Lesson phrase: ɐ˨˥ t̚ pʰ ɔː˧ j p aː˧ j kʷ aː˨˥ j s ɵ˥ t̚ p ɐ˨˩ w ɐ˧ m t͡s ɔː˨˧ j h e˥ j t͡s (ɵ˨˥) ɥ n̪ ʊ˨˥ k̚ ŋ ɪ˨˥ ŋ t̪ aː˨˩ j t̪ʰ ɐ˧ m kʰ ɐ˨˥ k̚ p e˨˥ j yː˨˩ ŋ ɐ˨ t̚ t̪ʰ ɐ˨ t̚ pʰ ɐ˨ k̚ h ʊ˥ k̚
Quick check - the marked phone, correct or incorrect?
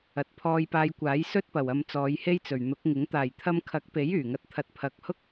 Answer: incorrect